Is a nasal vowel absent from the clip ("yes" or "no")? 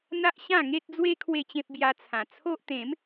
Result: no